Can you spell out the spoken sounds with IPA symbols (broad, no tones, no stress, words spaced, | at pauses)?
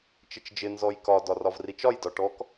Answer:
t͡ʃɪt͡ʃd͡ʒɪ nzɔjkɒ dɒrɒvrit͡ʃɒj dɒʈɔk